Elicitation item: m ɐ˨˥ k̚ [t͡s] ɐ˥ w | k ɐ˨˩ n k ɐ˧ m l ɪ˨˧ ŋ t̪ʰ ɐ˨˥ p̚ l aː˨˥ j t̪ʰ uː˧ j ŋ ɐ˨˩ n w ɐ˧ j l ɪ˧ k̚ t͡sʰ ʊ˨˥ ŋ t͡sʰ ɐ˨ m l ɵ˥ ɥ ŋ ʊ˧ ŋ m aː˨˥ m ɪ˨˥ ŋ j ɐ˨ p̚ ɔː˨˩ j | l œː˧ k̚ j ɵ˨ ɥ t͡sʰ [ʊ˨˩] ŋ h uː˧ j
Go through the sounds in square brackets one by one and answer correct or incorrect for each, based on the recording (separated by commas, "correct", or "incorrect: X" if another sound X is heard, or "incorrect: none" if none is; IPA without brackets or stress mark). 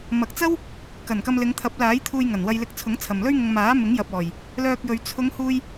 correct, incorrect: ʊ˨˧